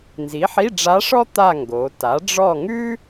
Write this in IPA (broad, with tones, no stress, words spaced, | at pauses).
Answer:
nzi˩˥ħi˧˥˧ɖ͡ʐa˧˥ʂɔ˥ t̪a˦˨ŋɡo˩˧ta˩˥ ɖ͡ʐɔ˦˨ŋʉ˥